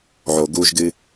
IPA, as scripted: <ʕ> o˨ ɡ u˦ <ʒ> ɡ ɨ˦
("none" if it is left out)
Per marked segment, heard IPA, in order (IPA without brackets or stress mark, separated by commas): ʕ, ʒ